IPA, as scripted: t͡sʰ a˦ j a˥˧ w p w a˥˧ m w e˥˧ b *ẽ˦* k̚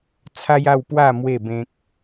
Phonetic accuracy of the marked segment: correct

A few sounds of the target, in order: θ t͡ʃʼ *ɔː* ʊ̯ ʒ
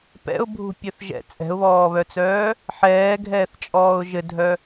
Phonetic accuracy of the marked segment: correct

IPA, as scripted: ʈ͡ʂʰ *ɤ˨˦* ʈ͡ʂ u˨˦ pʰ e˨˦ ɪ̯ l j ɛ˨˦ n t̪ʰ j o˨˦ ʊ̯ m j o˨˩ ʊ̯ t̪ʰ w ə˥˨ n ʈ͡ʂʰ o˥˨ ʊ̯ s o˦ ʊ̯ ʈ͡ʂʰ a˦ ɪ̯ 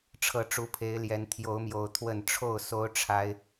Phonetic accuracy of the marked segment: correct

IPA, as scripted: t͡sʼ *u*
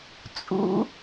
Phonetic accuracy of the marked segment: incorrect: ṵ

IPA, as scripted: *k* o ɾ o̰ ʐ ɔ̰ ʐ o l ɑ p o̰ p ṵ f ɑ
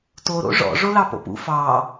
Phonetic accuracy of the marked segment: incorrect: t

